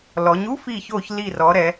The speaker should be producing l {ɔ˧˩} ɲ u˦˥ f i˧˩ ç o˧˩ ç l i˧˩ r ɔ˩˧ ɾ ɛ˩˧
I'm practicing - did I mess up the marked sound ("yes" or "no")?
yes